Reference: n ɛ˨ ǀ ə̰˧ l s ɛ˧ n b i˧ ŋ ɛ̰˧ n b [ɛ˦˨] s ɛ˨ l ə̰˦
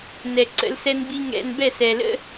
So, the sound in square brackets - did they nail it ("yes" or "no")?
yes